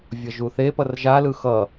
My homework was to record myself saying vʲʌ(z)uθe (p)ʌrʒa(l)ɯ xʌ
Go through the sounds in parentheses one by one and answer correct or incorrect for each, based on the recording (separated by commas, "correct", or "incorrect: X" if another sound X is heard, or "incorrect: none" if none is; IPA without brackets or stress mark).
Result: incorrect: ʒ, correct, correct